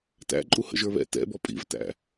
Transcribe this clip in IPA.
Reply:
tæ̰ǃʼu hə̰ʒə˞βɛ̰ tɛ̰bɔ pʼḭvtæ̰

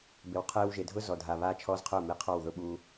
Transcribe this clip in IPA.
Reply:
bɪ˨wqʰeː˧wʒe˨dʱʊ˦ zɔ˨dʱa˨ βaː˦t͡ʃʰɔː˦zqʰʊː˦˨ mi˨qʰɔ˦˨wðʊ˦ ɓuː˦

